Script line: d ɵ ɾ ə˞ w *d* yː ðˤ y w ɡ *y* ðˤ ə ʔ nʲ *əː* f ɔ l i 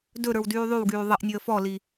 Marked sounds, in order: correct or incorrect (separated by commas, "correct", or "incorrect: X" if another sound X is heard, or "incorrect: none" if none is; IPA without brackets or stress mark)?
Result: correct, incorrect: yː, correct